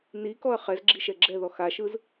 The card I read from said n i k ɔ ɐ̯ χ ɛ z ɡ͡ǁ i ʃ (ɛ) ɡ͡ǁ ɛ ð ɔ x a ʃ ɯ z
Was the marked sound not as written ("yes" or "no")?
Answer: no